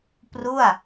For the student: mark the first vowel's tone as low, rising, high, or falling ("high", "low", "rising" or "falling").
falling